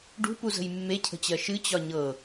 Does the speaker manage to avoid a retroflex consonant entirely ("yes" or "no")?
no